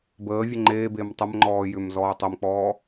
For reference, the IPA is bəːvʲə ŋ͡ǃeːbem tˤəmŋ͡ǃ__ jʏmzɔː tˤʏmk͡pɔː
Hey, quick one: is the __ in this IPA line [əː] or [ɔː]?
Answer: ɔː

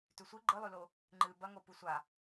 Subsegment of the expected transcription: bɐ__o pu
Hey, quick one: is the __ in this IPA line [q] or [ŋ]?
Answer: ŋ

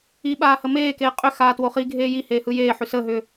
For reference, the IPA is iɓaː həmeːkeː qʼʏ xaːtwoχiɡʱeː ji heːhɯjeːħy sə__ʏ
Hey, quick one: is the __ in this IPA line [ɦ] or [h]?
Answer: ɦ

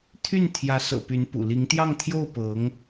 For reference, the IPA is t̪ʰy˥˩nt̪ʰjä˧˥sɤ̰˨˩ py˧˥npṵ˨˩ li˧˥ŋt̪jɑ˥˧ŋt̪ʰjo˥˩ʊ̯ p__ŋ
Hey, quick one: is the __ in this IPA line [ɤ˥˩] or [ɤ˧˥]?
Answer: ɤ˧˥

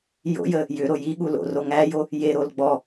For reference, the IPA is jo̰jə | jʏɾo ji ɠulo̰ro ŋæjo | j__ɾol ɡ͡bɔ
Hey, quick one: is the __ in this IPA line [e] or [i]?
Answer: e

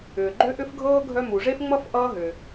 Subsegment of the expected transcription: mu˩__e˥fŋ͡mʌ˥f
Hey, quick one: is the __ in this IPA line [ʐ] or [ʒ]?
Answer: ʐ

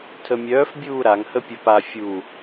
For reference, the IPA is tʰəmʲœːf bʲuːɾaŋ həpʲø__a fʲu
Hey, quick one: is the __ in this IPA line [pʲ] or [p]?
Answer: p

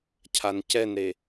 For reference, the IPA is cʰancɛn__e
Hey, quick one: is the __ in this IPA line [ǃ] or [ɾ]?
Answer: ɾ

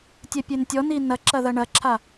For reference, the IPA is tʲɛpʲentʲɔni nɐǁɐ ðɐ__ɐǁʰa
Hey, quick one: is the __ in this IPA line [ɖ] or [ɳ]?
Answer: ɳ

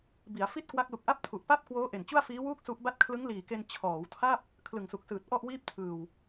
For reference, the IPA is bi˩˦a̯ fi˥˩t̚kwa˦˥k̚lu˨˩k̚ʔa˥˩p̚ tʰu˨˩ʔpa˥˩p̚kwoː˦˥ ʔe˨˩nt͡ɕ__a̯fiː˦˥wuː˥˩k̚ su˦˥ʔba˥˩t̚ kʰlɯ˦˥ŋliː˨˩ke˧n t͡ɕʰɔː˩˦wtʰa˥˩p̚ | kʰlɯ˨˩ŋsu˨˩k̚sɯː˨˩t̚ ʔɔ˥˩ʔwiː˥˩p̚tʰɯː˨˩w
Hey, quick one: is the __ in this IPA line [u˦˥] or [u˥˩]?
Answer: u˥˩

